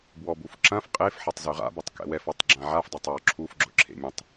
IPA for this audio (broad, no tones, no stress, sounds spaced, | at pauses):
b w ɔ b u f ǁ ɐ̃ f qʼ e f ħ ɐ tˤ z y ʁ a̰ b ɐ tˤ k ɛ̰ w ɛ f ɔ tˤ ɡ͡ǁ ã ʕ a f dˤ œ tˤ w ɔ ǁʰ u f ɡ͡ǁ ʊ ǁʰ ḛ mʲ ã tˤ